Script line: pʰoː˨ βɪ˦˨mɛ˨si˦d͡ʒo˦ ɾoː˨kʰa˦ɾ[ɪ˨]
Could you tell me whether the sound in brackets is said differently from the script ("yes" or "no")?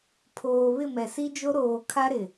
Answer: no